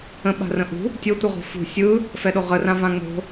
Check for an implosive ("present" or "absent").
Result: present